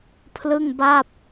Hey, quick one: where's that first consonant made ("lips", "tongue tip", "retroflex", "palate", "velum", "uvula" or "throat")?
lips